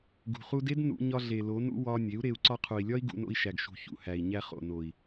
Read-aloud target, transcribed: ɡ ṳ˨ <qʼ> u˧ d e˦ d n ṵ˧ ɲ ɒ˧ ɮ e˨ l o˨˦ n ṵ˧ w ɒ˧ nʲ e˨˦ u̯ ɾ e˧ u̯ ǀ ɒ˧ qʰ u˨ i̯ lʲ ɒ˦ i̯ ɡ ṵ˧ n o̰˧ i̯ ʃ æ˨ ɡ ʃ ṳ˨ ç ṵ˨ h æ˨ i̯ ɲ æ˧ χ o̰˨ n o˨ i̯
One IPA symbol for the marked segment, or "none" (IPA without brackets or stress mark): χ